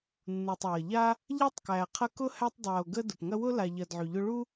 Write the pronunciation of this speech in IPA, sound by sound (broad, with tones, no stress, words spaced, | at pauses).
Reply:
nːu˩tˤwɐ˩ʎa˦ | ʎa˥tˤkæ˨qʰɐ˦kʊ˥ hæ˦tˤdˤa˨o̯ɡə˦ dʊ˩pŋɐ˦wʊ˥ la˨ʎɐ˨dʕy˩ʎʊ˦ ɭu˦